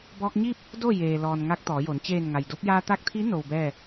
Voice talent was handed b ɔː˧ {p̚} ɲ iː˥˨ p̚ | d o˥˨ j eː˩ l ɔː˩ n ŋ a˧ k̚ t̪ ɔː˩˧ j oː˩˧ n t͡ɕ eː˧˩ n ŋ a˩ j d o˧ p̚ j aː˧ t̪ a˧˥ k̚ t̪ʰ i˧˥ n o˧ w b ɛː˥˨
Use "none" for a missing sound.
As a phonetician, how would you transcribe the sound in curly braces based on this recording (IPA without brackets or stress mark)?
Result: k̚